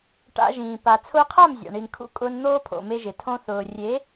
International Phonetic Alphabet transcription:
ʈ a̰˧ ʒ ĩː˨ p a˨ t͡sʰ ʊː˧ qʰ a˦˨ m zʲ a̰˨ ɳ i˨ n kʰ ṵ˧ kʼ ʊː˧ n n̪ oː˦ pʰ o̰˨ m e˧ ʒ ɪ˨ tʰ õ˧ θ ʊː˨ rʲ e˨˦

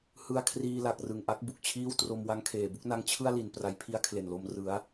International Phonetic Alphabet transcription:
h ɯ˧ a̯ kʰ r iː˧ l a˨˩ k̚ r ɯ˨˩ ŋ ʔ a˦˥ k̚ b u˨˩ k̚ t͡ɕʰ iː˥˩ w t r o˧ m w a˦˥ ŋ kʰ eː˨˩ b u˥˩ k̚ n a˦˥ ŋ t͡ɕʰ ɯ˥˩ a̯ l i˨˩ n p r a˨˩ j pʰ i˦˥ a̯ kʰ l e˨˩ n l o˧ m r ɯ˩˦ a̯

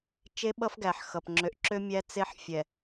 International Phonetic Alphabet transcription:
t͡ʃ e˦ ɓ ʌ˦ f ɡ æ˨ ħ x ʌ˨ p ŋ͡ǁ ø˨ ʔ ǁ ø˦ mʲ æ˦ t͡s e˦ ħ fʲ ɛ˨

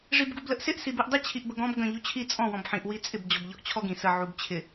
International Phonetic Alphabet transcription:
ʐ i b ɡ u b l ə ʔ s ɪ ʔ s i b i ʔ dˤ ɪ t͡ɕʰ i ʔ b ə ɡ ɔ̃ b ɡ ə̃ ʎ u t͡ɕʰ i t͡sʼ ɔ̃ w ɔ̃ b ħ ĩ ʔ w i t͡sʼ ɪ b d͡ʑ ɔ b ʎ ɔ ʔ t͡ɕʰ ɔ ɡ ĩ s ə ʕ u b t͡ɕʰ ɪ

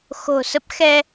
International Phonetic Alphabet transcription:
x o̤˨˩ s ə˦˥ p̚ x ɛ˧

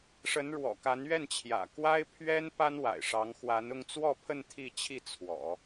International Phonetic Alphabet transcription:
ʂ ə˧˥ n ɻ w ɔ̰˨˩ k a˧˥ n ɥ ɛ˥˩ n t͡ɕʰ j ä̰˨˩ k w a˥ ɪ̯ pʰ ɥ ɛ˥ n p a˥ n w a̰˨˩ ɪ̯ ʂ ɑ˧˥ ŋ x w a˧˥ n ʊ˥˧ ŋ t͡s w ɔ˥˧ pʰ ə˥˧ n t̪ʰ i˥˧ t͡ɕʰ i˥˩ t͡sʰ w ɔ̰˨˩˦

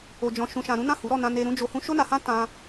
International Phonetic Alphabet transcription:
o˨ d͡ʒ ɔ̃˨ ʃ ũ˨ ʃ ã˨ ɾ ũ˨˦ n ã˦˨ h u˨˦ ɾ ɔ˦˨ n ã˧ n e˧ ɾ ũ˧ d͡ʒ o˧ h ũ˦ ʃ o˦ n a˧ h ã˦ t ã˧

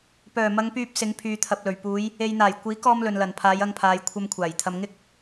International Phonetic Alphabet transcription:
p œː˨˩ m ɐ˨˧ ŋ p yː˧ p̚ s ɪ˨˧ ŋ pʰ yː˨ t̪ʰ ɐ˨ p̚ l ɵ˨˩ ɥ p uː˨˧ j | e˨ j n̪ aː˨˩ j kʷ iː˨˥ k ɔː˧ m l ɵ˨ n l ɐ˨˩ n pʰ aː˨˧ j ɐ˧ ŋ pʰ aː˨ j kʷʰ ɐ˧ m kʷʰ aː˨˩ j t̪ʰ ɐ˧ m ŋ ɪ˥ k̚

